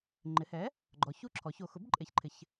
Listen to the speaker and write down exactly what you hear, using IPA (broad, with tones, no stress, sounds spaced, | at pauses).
ŋ͡ǃ ɪ˩˧ h ɛ˩˥ | ɡ͡ǃ ɔ˩˧ ç u˥˨ ǁʰ ɔ˩˧ ç o˩˧ x ʊ˩˥ b ǃʼ e˩˥ ç ǃʰ ɪ˩˧ ç